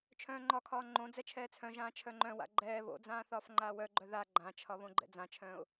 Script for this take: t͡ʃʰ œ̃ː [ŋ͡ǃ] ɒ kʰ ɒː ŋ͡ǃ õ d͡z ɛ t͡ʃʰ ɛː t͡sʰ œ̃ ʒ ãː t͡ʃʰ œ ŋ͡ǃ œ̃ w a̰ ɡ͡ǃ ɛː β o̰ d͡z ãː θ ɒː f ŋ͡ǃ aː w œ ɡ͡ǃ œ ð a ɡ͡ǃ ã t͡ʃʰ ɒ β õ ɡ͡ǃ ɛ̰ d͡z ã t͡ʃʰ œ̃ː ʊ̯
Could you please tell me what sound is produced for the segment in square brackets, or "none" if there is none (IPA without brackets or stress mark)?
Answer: ŋ͡ǃ